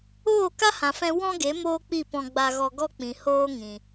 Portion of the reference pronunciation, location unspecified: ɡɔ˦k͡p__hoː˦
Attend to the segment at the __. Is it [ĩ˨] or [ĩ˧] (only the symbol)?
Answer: ĩ˨